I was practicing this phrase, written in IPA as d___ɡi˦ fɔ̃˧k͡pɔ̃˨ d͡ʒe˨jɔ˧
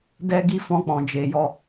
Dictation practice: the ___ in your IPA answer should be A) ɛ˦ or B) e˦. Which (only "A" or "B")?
A